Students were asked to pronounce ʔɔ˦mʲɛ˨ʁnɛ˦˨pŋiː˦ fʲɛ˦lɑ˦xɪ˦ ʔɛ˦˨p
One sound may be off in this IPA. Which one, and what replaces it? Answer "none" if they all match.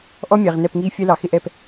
ɑ˦ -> ɑ˨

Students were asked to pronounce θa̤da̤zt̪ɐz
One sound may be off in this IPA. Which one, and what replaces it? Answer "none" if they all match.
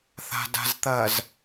none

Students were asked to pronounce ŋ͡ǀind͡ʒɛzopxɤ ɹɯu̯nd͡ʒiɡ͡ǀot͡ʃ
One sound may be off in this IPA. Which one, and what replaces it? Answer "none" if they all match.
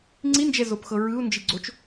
none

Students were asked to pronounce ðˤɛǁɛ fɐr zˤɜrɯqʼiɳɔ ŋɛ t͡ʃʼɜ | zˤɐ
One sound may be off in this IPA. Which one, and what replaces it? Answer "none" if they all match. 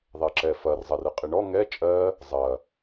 none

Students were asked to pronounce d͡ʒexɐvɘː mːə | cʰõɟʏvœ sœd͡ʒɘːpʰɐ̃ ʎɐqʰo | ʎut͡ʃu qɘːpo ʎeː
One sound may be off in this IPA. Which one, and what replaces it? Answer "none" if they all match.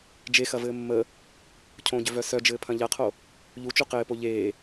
none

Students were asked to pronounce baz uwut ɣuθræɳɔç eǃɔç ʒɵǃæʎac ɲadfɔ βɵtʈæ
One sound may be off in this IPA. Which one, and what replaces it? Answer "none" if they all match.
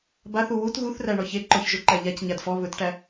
z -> θ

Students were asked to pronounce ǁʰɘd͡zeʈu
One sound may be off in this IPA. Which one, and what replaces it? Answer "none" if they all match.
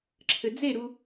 ʈ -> ɾ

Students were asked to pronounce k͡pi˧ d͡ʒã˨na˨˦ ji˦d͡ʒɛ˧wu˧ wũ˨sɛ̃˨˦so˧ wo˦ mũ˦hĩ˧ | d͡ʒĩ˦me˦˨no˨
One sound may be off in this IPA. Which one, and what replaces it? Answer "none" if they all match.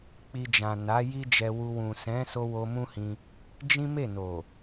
none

